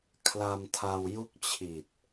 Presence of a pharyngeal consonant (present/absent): absent